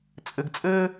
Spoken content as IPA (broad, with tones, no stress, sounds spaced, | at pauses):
t͡sʼ ɘ˨ ɡ t͡sʼ ɘː˦